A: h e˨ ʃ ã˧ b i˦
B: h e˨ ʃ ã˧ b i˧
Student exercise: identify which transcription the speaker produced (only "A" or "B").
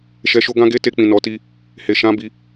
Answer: B